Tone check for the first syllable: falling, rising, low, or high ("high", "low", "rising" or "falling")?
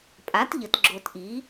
rising